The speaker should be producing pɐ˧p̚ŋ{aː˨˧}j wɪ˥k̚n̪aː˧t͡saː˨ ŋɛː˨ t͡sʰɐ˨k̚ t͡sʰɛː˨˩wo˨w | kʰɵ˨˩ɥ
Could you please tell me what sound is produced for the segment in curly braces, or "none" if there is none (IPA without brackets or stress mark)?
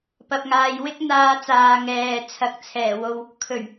aː˧